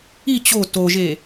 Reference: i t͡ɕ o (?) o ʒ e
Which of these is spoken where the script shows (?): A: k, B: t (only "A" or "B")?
B